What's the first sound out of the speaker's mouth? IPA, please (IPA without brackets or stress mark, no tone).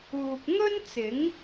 uː